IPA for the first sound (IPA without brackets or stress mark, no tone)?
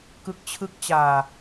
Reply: k